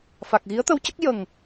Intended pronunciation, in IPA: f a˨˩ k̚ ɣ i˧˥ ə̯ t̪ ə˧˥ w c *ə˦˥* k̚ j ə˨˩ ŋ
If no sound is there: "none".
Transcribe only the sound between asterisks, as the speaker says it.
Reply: ə˦˥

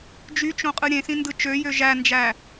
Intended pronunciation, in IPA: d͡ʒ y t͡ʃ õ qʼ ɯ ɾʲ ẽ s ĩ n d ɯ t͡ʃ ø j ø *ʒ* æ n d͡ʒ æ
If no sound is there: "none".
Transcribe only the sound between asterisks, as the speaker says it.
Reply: ʒ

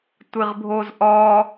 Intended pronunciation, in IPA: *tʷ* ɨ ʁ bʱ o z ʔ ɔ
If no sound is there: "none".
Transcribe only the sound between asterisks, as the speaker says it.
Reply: tʷ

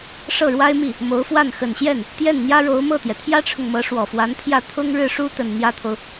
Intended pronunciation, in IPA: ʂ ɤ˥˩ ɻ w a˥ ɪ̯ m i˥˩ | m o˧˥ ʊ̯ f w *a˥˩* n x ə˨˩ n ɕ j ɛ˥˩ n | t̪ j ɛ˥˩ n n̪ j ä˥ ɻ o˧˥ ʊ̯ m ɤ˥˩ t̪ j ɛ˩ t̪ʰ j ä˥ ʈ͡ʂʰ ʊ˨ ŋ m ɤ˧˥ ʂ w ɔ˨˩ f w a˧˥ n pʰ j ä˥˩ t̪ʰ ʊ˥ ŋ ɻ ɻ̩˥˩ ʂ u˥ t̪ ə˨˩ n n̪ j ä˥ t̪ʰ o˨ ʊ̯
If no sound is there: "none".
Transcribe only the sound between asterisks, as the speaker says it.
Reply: a˥˩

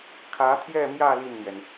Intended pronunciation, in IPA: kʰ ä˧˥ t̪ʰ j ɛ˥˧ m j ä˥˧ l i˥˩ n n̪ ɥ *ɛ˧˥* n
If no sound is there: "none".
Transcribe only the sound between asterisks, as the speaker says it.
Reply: ɛ˩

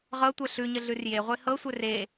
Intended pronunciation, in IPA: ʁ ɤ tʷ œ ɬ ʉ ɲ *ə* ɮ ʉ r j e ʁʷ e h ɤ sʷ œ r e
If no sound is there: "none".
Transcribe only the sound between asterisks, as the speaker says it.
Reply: ə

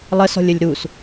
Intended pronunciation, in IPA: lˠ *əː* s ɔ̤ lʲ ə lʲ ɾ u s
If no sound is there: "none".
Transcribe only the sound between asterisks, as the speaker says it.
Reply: ə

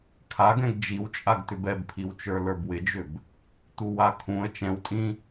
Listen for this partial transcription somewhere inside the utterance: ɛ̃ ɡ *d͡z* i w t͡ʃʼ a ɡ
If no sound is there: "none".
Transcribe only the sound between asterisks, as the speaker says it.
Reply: d͡ʒ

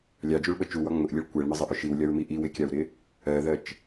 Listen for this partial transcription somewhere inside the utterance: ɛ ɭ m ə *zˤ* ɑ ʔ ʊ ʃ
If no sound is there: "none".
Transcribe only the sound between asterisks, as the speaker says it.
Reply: zˤ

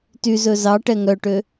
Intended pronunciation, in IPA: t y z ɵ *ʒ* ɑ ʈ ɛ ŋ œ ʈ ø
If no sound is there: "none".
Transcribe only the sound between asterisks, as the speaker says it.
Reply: z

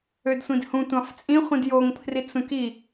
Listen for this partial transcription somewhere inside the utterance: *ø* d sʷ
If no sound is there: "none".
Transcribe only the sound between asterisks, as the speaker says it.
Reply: ø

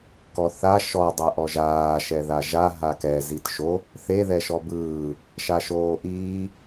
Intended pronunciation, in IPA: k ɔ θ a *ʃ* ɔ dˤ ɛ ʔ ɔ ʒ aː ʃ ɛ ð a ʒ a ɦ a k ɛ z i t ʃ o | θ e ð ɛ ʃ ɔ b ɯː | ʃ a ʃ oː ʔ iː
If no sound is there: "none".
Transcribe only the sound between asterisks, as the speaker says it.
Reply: ʃ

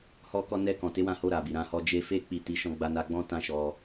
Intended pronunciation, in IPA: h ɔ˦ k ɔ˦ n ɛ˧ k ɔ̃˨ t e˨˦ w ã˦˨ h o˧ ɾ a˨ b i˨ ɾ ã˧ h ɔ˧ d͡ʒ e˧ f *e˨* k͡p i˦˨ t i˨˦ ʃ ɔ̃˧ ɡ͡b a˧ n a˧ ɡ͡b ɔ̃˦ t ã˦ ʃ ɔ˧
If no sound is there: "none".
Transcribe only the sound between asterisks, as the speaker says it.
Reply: e˦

